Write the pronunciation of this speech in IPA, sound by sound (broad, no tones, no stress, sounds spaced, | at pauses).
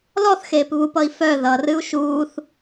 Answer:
l ɔ θ x eː p β u p ʌ i̯ f œ ð ʌ r ɨ u̯ ʃ uː θ